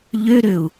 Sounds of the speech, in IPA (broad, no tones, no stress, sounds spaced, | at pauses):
ʎ ø ɾ ø u̯